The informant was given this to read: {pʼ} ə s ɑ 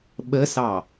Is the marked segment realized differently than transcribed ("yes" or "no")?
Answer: yes